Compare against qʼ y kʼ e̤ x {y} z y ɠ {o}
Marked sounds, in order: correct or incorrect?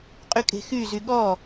correct, incorrect: ɔ

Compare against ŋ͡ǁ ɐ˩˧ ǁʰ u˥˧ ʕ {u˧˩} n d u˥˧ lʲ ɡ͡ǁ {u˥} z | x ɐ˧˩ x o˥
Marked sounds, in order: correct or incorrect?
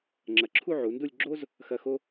incorrect: u˩˧, incorrect: o˥

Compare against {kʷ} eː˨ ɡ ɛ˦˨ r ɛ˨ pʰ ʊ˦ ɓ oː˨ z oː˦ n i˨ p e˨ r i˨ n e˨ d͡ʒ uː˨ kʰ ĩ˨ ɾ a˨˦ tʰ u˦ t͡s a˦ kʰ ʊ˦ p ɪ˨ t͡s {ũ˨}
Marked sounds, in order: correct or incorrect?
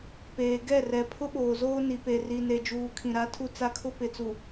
incorrect: p, incorrect: u˨

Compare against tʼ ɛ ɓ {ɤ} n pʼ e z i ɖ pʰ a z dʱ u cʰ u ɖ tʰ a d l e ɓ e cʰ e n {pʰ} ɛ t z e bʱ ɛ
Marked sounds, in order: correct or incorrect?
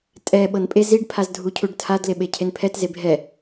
correct, correct

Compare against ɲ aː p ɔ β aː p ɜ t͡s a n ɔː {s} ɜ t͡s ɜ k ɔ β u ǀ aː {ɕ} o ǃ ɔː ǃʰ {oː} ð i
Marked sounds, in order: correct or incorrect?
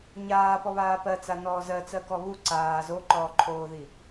incorrect: z, incorrect: z, correct

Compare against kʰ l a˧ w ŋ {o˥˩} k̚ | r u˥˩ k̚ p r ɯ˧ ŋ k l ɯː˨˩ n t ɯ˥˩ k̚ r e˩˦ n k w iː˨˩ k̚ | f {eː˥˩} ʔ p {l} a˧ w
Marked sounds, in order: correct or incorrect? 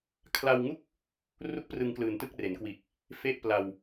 incorrect: u˥˩, incorrect: e˥˩, correct

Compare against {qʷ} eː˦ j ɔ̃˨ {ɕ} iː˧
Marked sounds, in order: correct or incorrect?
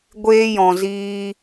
incorrect: ɡʷ, incorrect: z

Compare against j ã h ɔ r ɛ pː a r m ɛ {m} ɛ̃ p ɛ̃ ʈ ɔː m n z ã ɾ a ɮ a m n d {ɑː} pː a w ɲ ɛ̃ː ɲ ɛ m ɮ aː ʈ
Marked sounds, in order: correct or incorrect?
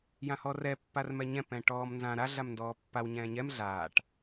incorrect: ɲ, incorrect: ɔː

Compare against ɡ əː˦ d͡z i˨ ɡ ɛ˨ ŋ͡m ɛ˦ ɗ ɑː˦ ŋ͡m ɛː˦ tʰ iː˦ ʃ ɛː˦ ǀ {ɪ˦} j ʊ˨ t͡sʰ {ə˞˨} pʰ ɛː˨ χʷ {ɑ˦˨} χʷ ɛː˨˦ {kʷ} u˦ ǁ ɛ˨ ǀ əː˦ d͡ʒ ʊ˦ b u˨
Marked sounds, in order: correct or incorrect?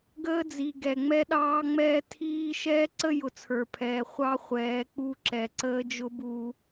incorrect: ə˦, correct, incorrect: ɑ˦, incorrect: k͡p

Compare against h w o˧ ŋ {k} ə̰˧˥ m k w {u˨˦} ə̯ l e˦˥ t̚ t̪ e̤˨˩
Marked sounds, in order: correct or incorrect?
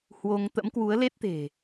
incorrect: t̪, correct

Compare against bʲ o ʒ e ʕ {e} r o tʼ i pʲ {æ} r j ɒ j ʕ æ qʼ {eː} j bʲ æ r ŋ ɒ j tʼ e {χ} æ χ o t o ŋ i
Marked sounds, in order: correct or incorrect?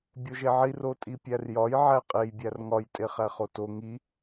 incorrect: i, correct, incorrect: e, correct

